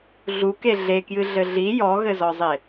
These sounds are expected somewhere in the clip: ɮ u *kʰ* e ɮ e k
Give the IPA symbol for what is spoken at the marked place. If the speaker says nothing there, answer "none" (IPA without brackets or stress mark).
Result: k